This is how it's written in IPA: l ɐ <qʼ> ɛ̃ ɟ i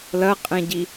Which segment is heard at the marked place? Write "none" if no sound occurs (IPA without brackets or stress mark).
qʼ